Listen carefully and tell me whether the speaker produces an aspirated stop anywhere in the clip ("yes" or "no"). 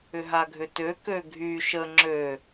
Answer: no